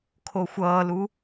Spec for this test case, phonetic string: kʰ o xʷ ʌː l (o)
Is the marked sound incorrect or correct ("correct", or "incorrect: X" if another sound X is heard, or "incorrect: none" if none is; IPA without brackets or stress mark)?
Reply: incorrect: u